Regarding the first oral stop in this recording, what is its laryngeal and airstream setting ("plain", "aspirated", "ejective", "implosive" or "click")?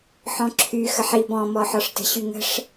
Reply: click